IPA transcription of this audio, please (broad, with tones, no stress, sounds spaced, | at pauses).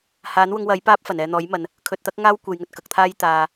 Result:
h aː˨˥ n w ʊ˧ ŋ w ɐ˨˥ j p aː˥ p̚ f ɐ˨˩ n ɛː˨ n̪ ɔː˨˥ j m ɐ˨ n | kʰ ɵ˨ t̚ t̪ ɐ˥ k̚ ŋ aː˥ w kʷ e˨ j ŋ ɵ˨ t̚ k ɐ˨˥ k̚ t̪ʰ aː˥ j t̪ aː˨